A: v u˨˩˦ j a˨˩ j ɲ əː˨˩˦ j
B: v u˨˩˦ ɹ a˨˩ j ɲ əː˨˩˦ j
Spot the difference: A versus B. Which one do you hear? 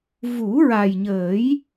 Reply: B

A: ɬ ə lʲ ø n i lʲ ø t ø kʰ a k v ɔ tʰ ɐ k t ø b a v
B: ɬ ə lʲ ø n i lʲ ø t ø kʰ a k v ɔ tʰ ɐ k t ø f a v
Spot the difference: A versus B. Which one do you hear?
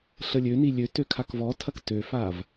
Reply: B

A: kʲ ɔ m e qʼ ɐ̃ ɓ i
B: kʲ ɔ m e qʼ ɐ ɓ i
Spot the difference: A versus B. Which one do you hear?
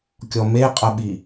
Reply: B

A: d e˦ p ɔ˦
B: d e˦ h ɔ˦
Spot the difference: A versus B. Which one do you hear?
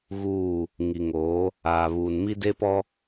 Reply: A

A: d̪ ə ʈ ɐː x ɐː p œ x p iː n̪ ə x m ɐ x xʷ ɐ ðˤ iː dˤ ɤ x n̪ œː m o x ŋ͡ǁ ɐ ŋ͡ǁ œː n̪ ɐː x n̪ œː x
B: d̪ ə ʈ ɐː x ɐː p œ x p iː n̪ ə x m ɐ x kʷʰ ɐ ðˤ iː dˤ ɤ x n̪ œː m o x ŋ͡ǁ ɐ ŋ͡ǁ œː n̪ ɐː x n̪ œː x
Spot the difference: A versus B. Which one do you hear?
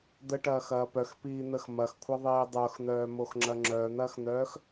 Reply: B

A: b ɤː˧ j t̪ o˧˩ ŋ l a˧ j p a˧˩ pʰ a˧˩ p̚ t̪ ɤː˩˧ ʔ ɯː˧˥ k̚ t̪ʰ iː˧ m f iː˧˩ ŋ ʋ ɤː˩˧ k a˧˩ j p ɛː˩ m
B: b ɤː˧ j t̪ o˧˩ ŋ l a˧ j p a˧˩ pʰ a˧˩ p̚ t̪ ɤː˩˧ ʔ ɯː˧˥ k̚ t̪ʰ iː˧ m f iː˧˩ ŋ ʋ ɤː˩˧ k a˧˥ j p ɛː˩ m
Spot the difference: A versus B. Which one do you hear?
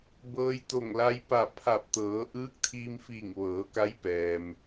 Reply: B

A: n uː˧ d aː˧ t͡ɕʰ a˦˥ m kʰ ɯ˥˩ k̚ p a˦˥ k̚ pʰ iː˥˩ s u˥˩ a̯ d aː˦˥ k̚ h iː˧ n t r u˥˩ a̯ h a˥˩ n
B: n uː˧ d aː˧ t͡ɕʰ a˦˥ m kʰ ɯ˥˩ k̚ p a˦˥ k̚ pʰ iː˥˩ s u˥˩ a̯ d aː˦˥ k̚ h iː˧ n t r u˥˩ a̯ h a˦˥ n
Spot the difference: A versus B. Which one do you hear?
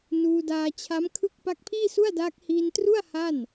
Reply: A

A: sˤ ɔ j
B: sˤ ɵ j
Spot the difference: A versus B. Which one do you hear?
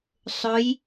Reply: B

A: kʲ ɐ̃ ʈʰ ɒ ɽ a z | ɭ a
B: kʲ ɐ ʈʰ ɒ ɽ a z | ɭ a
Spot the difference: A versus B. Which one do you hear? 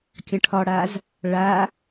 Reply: A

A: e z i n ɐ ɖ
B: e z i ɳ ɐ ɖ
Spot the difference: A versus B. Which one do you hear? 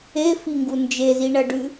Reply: B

